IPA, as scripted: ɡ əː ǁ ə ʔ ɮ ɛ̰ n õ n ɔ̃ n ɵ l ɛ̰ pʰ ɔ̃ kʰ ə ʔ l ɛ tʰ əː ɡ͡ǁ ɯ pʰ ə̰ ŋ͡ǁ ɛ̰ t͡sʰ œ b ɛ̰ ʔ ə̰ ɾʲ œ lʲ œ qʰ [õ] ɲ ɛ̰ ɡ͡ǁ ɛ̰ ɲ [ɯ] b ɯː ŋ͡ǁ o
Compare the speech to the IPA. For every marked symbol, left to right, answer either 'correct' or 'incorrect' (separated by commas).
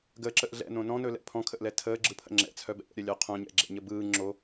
correct, incorrect